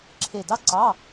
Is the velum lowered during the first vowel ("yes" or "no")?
no